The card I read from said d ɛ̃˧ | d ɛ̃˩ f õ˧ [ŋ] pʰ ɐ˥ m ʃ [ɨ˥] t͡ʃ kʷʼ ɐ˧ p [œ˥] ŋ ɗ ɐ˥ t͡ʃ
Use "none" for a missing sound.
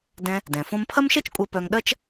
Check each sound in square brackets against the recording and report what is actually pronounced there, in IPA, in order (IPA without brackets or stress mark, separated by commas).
m, ɛ˥, œ˧